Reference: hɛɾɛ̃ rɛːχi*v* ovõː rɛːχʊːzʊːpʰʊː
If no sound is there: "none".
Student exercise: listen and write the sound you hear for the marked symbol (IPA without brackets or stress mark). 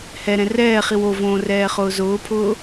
w